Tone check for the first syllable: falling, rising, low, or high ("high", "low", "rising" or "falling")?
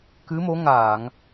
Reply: rising